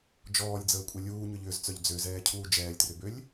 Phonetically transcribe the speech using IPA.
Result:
d͡ʒ ɔː lʲ d͡z əː kʷʼ ɛ lʲ uː ɲ ʏ ʎ ʏː z t͡s œ ʎ d͡z ø z ɛː cʰ uː d͡ʒ ɛː lʲ t r ʏ b ø lʲ

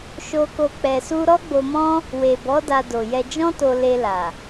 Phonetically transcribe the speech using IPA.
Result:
ʃ o˧ k o˧ k͡p ɛ˧ s u˦ ɾ ɔ˦ ɡ͡b o˧ m ɔ̃˦ | w e˨ b ɔ˨˦ d a˧ d o˨ j ɛ˧ d͡ʒ ɔ̃˦ t o˧ l e˧ l a˨

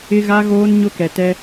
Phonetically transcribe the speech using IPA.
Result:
ɪ˦ ɣ a˦ ɣ oː˦ n ɲ ʊ˦ k ɛ˨ t ɛ˦

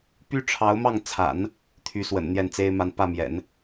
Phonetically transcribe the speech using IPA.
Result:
p y˥ ʈ͡ʂʰ ɑ˧˥ ʊ̯ m ɑ˥˩ ŋ t͡sʰ a̰˨˩˦ n | t̪ʰ y˧˥ s w ə̰˨˩ n n̪ j ɛ˥˩ n t͡s e˥ ɪ̯ m a˥˧ n p ä˥˩ m j ɛ̰˨˩˦ n

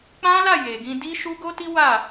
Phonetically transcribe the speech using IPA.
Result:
k͡p ã˦ l a˦˨ j e˨ ɡ ĩ˧ d i˦ ʃ u˦ ɡ o˦ t i˦ w a˦˨

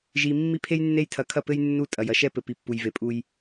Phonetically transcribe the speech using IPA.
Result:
ʒ i˨ mː i˦ pʰ e˦ j nː e˦ j tʰ ɐ˨˦ kʰ ɐ˦˨ p ɘ˦ j nː u˦˨ tʼ ɐ˨ j ɐ˨ ʃ ɛ˦ p ɘ˨ p i˨ pː u˨ j v e˨ pʼ u˦ j

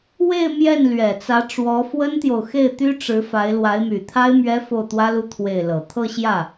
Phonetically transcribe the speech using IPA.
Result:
w e˥˧ ɪ̯ m j ɛ˥˩ n l ɥ ɛ˨˩ t͡s ä˧˥ ʈ͡ʂ w ɔ˧˥ f w ə˥ n t̪ j o˨ ʊ̯ x e˥˩ ɪ̯ t̪ y˥ ʈ͡ʂ ɻ̩˧˥ f a˧˥ ɪ̯ l w a˧˥ ɪ̯ m y˨˩ t̪ʰ a˥ ɪ̯ m ɥ ɛ˥ f o˥˩ ʊ̯ t̪ w ä˥ l u˥˧ t̪ʰ w e˥˩ ɪ̯ l ɤ˨˩ t̪ʰ ɤ˥˧ ɕ j ä˥˩

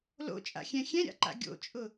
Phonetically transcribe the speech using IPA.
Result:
l o̰ t͡ʃʼ a̰ xʲ ɛ̃ xʲ ɛ̃ ɾʲ a̰ ǃ a̰ ɡʲ o̰ t͡ʃʼ ʊ

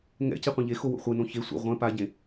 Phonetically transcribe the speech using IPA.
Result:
ŋ ɛ̰ c i qʷ ĩ ʎ e x o w o̰ χʷ e n õ ç e sʷ ɛ̰ ʁʷ ɛ̃ p a ɟ ẽ

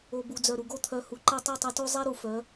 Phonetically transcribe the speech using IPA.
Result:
o˨ b u˨ d͡z œ˨ ɾ u˨ ɡ o˦ t̪ʰ œ˧ h u˨ ǃ ɛ˧ tˤ ɛ˦˨ tˤ ɛ˧ t o˦ zˤ ɛ˦ ɾ u˨ f œ˨˦

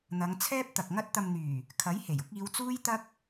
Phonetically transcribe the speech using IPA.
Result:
n̪ ɐ˨˧ ŋ t͡sʰ ɛː˥ p̚ t̪ ɐ˨ k̚ ŋ ɐ˥ t̚ t̪ ɐ˨ m n̪ yː˨˩ | kʰ ɐ˨˥ j h e˨˩ j ʊ˨˥ k̚ iː˨˧ w t͡s uː˥ j t̪ ɐ˥ k̚

